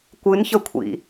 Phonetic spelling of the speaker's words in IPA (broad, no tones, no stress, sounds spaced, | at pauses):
kʷ ɨ n ç ə kʷʰ ḭ